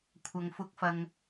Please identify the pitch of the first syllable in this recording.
low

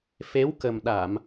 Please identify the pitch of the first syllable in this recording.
rising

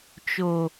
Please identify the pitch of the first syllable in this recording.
low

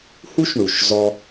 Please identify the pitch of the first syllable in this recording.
high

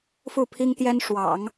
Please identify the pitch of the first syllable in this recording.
falling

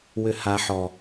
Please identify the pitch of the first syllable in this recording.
high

